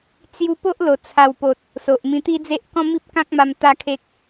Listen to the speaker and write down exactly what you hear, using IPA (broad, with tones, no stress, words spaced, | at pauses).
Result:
t͡sju˧ po˦ʔlo˨˩ t͡sʰa˨˩wpo˨t̚ | so˨ʔ mĩ˧t̪i˦d͡ze˦ʔ kɔ̃˦mi˦p̚kã˦k̚ma˧m t̪a˦kʰe˦k̚